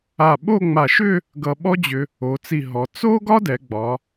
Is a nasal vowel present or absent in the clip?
absent